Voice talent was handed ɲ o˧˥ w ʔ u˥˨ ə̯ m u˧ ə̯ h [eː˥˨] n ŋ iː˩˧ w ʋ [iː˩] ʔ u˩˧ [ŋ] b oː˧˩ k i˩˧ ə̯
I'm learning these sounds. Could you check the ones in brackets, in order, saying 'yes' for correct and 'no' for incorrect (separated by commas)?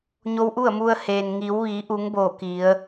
no, no, yes